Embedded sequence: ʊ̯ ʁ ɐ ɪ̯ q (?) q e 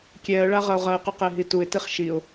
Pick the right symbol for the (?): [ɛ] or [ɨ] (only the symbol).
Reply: ɨ